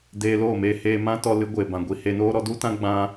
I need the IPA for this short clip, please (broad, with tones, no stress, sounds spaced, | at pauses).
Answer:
d eː˧ l oː˦˨ m eː˧ h eː˧ m ã˦ t ɔ˧ l ɨ˨˦ ɡʷ eː˨ b ã˨ ɡʷ i˨ h e˧ n oː˦ ɾ ɔ˦ d u˦ t ã˦ ɡ͡b ã˦